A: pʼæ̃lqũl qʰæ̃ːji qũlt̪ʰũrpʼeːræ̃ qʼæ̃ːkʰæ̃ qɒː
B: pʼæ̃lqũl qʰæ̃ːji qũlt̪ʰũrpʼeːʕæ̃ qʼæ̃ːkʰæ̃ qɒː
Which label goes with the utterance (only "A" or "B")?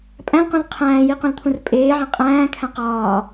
B